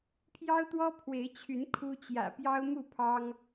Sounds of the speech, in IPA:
pʰ j ɑ˦ ʊ̯ t̪ w ɔ˦ pʰ w e˨˦ ɪ̯ t͡ɕʰ y˨˦ n kʰ u˦ t͡ɕ j ä̰˨˩ p j ɑ˦ ʊ̯ m u˥˨ pʰ ɑ˦ ŋ

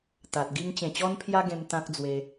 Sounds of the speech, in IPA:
t̪ a˨ t̚ ɡ i˦ ŋ t͡ɕ ẽ˨˩ t͡ɕ ɔ˦ n pʰ j a˦ ɡ ẽ˧ m t̪ ã˦ k̚ d͡z w e˧

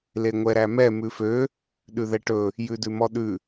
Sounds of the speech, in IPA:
l e ŋʷ ɛ ɾ æ m ɛ m ʉ f ø | ɗ ʉ ð ɛ ʈ ɵ | j ʉ d ʉ m ɔ ɗ ʉ

